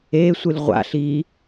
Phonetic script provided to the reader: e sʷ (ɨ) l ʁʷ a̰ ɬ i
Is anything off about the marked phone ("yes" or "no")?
no